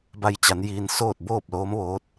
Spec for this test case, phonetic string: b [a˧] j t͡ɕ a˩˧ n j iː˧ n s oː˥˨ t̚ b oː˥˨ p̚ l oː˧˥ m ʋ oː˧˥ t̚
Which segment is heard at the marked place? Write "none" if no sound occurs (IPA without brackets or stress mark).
a˧